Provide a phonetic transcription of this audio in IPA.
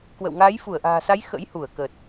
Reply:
k w ə̰˧˨ w ŋ aː˨˦ j f u˧˩ ə̯ ʔ a̤ː˨˩ s a˨˦ j x ə̰˧˥ j h u˧˩ ə̯ k ə˨˩ t̚

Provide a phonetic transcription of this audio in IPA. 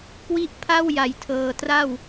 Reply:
k w i˦˥ ʔ pʰ a˥˩ w j a˨˩ j tʰ ɤː˨˩ t r a˥˩ w

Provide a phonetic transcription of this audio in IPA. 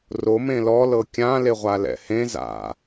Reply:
r o m ẽ l ɔ l ɤ kʲ ã l e ʁʷ a l ɛ̰ h ẽ z a̰

